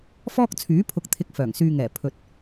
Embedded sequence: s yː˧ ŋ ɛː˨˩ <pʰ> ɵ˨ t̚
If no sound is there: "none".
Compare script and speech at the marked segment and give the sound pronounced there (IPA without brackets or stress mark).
pʰ